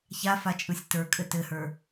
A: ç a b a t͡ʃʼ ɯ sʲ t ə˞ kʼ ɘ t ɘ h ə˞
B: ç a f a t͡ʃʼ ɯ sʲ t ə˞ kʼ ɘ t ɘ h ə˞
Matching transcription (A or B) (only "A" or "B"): B